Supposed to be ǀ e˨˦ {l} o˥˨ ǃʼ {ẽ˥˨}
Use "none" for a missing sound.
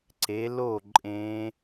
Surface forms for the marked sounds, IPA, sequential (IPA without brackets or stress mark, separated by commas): l, ẽ˦˥